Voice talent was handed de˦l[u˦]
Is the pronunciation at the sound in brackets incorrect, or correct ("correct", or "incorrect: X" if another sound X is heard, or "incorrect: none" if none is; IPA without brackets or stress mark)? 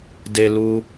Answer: correct